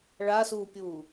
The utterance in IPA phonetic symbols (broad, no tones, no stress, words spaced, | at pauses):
ɭasuːpʲuː